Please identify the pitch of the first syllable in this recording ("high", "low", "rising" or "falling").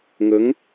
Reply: rising